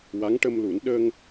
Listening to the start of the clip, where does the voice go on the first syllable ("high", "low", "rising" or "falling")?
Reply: rising